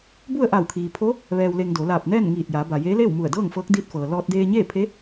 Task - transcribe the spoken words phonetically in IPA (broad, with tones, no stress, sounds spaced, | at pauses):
b u˥˨ ə̯ ʔ a˧˩ w kʰ iː˩ pʰ o˧˥ | ʋ ɛː˧ w l e˧ ŋ d o˩˧ l aː˧˩ p̚ n ɛː˥˨ n ŋ iː˧˩ t̚ j aː˩˧ b a˩ j eː˧˥ l eː˥˨ w m u˧˩ ə̯ d ɤː˥˨ ŋ f ɤː˧˥ k̚ d iː˧ t̚ f ɤː˩ l ɔː˧ t̚ d eː˧ ɲ eː˥˨ pʰ e˧˥